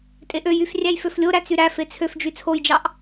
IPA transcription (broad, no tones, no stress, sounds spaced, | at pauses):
tʼ e ʔ ø j y f rʲ æ j f ø f lʲ o ɾ æ t͡s y ɾ æ f e t͡sʰ ø f d͡ʒ y t͡sʰ o j d͡ʒ ɑ ʔ